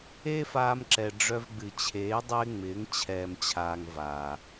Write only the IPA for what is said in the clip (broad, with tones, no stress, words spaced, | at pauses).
eː˦faː˧mǁɛ˨ ɖ͡ʐœ˧vɡ͡bɨ˨t͡ɕʰeː˨˦ dˤɪː˦ŋ͡mɪː˨˦ŋ t͡ɕʰɛː˨mt͡ɕʰaː˨ŋ vaː˨